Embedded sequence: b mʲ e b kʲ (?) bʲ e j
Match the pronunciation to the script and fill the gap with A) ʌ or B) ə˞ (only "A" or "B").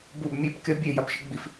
A